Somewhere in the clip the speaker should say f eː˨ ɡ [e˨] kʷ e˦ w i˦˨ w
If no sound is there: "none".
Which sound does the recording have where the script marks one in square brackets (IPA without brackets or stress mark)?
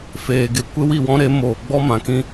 e˨